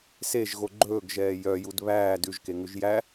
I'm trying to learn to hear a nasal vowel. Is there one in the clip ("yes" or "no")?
no